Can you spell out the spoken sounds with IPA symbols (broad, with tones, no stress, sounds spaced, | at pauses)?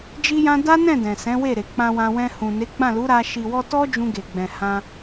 d͡ʒ i˦ j ã˦ d a˦ n ɛ̃˦˨ d ɛ̃˨ s ɛ̃˨˦ w e˦˨ ɾ e˨ k͡p ã˧ w ã˧ w ɛ̃˧ h ũ˨ n e˨˦ ɡ͡b ã˦˨ l u˨˦ ɾ a˧ ʃ i˨ w ɔ˧ t ɔ˦ d͡ʒ ũ˧ ɡ e˨ ɡ͡b ɛ̃˨ h ã˧